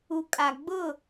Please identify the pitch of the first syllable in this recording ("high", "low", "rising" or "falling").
low